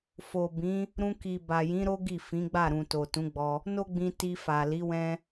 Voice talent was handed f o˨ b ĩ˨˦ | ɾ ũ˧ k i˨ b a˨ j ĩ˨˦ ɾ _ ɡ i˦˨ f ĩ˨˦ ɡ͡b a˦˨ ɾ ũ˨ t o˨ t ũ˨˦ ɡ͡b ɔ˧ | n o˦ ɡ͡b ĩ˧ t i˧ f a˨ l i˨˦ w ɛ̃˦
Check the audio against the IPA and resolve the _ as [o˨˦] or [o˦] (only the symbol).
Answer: o˦